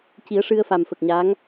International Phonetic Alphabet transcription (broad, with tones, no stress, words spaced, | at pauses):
ci˨˩˦ə̯ʂɨ˧ə̯fa˨˩m fə˨˩k̚ɲa˧˥ŋ